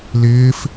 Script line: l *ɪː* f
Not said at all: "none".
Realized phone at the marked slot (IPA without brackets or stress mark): ɪː